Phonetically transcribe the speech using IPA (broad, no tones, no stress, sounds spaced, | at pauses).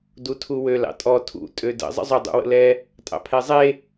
d u tʰ u w ø l ɑ̰ tʼ ɔ tʰ ṵ tʼ ø d ə̰ zˤ ə̰ zˤ ʏ dˤ ṵ w ə̰ l ɛ | tʼ ɑ̰ pʰ ɛ zˤ e